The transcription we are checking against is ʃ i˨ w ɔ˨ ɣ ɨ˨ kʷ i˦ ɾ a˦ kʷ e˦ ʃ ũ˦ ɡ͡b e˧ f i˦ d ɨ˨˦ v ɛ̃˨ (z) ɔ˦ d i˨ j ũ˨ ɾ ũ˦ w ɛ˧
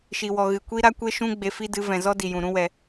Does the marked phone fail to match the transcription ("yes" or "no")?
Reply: no